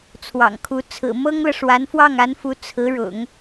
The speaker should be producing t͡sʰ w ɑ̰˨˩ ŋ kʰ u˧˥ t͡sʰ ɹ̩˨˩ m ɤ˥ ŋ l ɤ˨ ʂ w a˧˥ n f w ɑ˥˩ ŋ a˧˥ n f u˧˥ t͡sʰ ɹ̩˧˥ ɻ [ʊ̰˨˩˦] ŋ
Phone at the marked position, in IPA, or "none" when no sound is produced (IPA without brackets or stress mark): ʊ̰˨˩˦